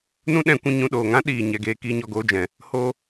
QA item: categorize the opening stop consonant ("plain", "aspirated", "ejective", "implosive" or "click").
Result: implosive